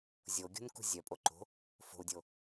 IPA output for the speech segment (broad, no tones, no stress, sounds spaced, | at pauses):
zʲ o ɡʲ ṳ n k ṳ zʲ œ pʼ o ǃ o̤ | f o̤ u̯ dʲ o